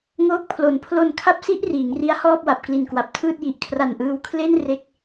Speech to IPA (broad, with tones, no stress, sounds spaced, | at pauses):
ŋ oː˥˩ k̚ pʰ l o˨˩ n pʰ l o˨˩ n kʰ a˦˥ p̚ s i˦˥ ʔ r iː˩˦ ŋ r i˦˥ a̯ h ɔː˥˩ p̚ w a˨˩ p̚ k l i˨˩ n k w a˨˩ p̚ tʰ ɯː˥˩ t̚ j i˨˩ ʔ kʰ r a˨˩ n ʔ ɯː˧ w kʰ l e˥˩ n r e˥˩ k̚